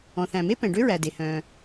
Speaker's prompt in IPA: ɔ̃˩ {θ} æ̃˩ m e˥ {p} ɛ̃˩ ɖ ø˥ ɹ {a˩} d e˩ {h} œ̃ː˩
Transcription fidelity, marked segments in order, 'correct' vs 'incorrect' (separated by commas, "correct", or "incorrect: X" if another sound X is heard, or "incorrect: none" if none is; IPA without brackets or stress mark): correct, correct, incorrect: æ˩, correct